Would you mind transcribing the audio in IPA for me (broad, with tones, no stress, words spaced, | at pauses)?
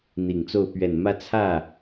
n̪i˨˩ŋt͡so˥˩ʊ̯ pɥɛ˨˩nmä˥˧ t͡sʰä˥˩